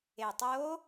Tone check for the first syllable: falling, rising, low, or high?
low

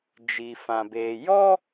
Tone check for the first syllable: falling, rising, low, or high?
low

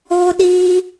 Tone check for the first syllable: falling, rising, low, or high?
high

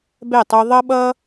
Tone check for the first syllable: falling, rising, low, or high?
falling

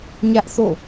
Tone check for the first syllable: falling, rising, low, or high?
high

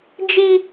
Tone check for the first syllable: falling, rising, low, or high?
high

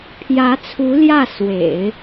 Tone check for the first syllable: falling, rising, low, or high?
rising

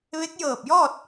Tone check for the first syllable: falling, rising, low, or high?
rising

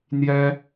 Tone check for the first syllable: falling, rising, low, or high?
high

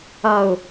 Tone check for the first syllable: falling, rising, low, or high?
falling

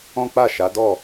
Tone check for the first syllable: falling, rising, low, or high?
high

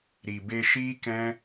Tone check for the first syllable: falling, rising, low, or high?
low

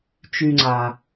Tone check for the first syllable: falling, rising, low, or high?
low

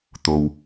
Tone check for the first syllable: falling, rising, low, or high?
low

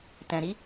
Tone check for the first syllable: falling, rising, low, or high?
low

